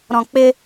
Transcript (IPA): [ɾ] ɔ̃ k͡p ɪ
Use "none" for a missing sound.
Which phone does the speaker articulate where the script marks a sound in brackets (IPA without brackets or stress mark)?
ɾ